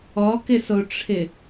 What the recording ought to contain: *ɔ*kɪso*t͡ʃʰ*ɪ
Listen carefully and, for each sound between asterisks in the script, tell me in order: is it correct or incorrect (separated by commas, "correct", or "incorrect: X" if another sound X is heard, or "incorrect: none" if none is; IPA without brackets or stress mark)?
correct, incorrect: ʈ͡ʂʰ